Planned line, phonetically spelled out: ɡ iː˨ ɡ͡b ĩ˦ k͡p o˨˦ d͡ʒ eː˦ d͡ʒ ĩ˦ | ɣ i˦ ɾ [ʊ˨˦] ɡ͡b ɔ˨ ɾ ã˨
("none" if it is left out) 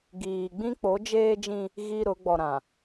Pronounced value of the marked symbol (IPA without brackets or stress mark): ʊ˨˦